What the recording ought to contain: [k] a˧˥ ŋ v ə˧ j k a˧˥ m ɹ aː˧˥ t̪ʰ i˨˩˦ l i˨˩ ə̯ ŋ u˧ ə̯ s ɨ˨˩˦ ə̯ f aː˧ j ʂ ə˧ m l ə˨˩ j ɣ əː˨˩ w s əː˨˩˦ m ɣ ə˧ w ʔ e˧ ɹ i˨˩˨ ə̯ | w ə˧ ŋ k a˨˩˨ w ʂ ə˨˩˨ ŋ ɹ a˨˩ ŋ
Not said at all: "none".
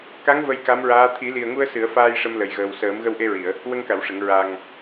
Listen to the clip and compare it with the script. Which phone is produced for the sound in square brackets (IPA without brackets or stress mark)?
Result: k